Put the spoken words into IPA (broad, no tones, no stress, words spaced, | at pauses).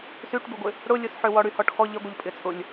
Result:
syʈbɪɡʷɪ | ɽʊlʲʊsħø wɔɽyhɔʈxɔ ʎəɡʷəʎ pʼɪt͡sʼʊlʲ